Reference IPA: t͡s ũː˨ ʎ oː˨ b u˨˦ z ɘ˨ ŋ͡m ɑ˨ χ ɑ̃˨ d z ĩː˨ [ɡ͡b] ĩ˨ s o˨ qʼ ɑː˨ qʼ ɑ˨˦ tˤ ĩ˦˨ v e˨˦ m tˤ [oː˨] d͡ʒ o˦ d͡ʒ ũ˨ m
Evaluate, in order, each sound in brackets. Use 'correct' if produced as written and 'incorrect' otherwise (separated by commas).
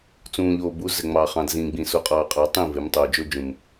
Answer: correct, correct